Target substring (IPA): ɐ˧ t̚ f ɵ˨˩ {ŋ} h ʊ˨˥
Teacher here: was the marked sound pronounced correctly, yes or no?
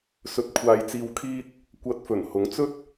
no